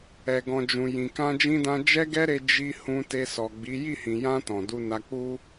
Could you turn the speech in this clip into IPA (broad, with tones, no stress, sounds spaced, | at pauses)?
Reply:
ɛ˨ ɡ ɔ̃˨ d͡ʒ ũ˨ j ĩ˨ k ã˧ d͡ʒ ĩ˧ d ã˧ d͡ʒ ɛ˦ ɡ ɛ˦ ɾ e˧ d͡ʒ i˧ h ũ˧ t e˧ s ɔ˨ ɡ͡b i˨˦ j i˦˨ h ĩ˨ j ã˧ t ɔ̃˨ d u˧ n a˧ k͡p u˦